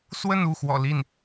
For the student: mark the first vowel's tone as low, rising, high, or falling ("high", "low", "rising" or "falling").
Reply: falling